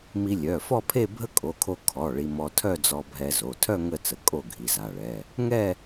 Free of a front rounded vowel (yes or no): no